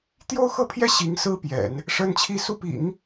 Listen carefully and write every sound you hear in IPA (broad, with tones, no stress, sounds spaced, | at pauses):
t̪ j o˥ ʊ̯ x ɤ˥˧ pʰ j ɛ˥˩ ɕ i˧˥ ŋ s ɹ̩˥ p j ɛ̰˨˩˦ n | ʂ ə˥ n t͡ɕʰ i˥˧ s u˥˩ p ḭ˨˩˦ ŋ